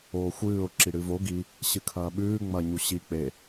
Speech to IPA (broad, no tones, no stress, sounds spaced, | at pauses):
oː xʷ ɨː ʊ̯ ǁ i ɽ ɨ v o ɡ i | ɕ ɨ kʰ ɐː ɓ ʉː ŋ͡m ɐ ɲ u ɕ i k͡p e